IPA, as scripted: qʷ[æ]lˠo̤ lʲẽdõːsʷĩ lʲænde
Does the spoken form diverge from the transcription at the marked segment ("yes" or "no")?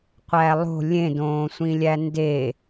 no